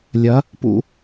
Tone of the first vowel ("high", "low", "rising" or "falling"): rising